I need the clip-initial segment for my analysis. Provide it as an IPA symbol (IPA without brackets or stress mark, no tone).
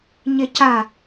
ɲ